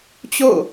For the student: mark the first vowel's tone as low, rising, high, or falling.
falling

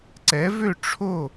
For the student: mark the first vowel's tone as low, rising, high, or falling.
rising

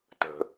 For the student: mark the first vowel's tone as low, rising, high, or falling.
low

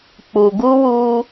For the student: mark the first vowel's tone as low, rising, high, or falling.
low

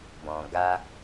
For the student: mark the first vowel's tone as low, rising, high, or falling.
low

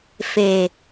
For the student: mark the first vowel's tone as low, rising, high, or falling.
low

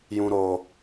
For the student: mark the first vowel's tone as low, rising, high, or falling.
high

